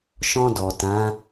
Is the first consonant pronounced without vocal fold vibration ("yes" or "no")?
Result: yes